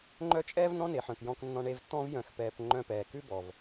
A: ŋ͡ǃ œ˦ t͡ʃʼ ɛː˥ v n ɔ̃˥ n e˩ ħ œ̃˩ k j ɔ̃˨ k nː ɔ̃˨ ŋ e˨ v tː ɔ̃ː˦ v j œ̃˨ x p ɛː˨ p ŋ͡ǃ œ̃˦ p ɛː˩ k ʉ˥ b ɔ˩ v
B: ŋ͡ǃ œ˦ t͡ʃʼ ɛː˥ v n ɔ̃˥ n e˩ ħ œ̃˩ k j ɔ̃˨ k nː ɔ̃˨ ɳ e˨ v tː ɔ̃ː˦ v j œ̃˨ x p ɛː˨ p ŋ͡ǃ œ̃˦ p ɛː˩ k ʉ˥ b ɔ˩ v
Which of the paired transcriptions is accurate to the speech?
B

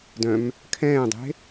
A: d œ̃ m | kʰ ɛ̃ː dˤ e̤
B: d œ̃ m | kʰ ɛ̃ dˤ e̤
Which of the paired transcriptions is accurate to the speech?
A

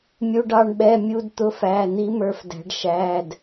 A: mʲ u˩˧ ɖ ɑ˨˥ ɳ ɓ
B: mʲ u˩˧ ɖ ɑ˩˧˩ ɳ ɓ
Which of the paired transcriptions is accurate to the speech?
B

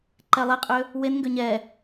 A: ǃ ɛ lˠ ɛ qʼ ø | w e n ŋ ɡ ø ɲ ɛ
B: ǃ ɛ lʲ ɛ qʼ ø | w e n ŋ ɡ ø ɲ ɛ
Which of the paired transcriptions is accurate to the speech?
A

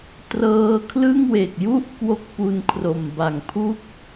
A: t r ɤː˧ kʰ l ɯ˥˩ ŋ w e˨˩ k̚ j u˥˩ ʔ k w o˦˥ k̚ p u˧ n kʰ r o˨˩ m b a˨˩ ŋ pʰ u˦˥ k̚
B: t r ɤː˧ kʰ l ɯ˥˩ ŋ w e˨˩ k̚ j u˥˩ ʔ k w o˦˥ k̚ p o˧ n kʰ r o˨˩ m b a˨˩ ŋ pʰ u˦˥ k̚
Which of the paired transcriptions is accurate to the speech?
A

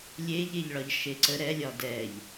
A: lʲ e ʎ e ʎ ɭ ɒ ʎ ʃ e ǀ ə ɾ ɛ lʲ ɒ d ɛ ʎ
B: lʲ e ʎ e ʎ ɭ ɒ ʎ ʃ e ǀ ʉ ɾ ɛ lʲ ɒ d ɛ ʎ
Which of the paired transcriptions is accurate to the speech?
A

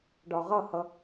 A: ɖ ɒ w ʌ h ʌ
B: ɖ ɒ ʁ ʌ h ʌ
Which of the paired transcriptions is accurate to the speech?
B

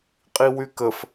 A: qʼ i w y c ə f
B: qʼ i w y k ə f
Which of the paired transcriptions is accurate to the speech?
B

